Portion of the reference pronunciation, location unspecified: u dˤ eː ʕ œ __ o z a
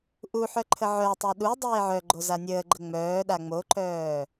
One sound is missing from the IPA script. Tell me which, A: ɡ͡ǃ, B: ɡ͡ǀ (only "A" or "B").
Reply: A